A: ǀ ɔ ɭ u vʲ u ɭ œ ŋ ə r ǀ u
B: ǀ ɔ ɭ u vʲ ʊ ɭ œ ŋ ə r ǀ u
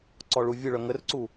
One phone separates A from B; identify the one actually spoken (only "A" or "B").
B